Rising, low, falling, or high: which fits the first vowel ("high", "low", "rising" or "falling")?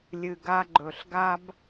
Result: low